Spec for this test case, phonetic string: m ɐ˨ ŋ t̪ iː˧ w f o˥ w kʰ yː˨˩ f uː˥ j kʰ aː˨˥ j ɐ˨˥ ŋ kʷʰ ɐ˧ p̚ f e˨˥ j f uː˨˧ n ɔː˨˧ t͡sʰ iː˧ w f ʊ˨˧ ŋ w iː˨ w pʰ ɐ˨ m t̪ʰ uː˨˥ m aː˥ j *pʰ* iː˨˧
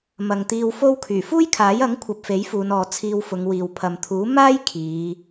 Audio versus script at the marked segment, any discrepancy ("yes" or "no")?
yes